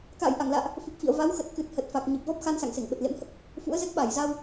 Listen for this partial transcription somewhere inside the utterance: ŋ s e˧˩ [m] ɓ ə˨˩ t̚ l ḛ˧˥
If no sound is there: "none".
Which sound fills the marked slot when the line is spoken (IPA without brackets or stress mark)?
ŋ